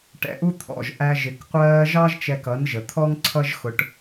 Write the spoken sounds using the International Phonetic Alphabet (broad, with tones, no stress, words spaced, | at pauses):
ʈɛ̰˨ʔu˦t̪ʰɔ̰˨ʒ ʔæ˧ ʒɪ˨kqʷɜː˧ʒɑ˦ʒ t͡ʃɛ˧kʌ˨˦nʒə˨ t̪ʰɔ˦ŋǀʰʌ˦ʒ xʊ˧ʈ